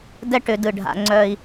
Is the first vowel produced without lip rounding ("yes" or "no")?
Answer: yes